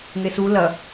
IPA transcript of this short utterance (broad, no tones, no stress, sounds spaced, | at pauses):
ŋ e s u l ɐ